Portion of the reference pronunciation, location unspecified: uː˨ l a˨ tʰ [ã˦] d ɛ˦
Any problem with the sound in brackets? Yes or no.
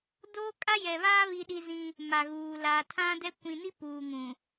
no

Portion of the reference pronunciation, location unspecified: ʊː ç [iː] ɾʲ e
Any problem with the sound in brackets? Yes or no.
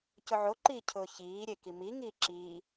no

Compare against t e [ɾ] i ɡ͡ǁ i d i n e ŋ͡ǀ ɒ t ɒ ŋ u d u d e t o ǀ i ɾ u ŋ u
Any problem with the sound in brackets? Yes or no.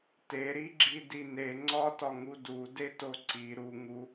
no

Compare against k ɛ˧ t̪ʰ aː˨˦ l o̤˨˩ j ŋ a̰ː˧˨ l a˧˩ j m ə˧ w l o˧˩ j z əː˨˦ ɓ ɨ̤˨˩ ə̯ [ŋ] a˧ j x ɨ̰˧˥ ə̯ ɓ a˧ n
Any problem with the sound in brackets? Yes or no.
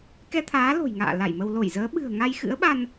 no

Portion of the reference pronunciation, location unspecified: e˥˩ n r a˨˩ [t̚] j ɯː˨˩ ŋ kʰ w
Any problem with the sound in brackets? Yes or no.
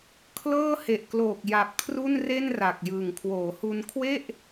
yes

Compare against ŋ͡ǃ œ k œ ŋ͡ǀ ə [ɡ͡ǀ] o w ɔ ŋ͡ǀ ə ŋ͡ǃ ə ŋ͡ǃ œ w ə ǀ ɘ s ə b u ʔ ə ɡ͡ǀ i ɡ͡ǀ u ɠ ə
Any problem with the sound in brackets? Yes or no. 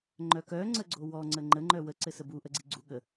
no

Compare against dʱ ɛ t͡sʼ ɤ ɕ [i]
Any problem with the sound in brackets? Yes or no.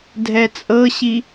no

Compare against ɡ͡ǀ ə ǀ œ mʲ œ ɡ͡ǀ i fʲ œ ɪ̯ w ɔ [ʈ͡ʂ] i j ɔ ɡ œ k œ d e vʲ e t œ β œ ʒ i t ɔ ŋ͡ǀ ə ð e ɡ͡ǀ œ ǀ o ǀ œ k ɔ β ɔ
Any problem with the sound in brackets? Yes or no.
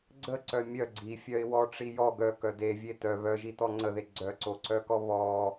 no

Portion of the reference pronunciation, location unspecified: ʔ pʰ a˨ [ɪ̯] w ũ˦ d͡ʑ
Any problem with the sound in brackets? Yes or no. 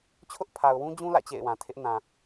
yes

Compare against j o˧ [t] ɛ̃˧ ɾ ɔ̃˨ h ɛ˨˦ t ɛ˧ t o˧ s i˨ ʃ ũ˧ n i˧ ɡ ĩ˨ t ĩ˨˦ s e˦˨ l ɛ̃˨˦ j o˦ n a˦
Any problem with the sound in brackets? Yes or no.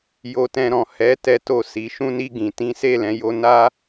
no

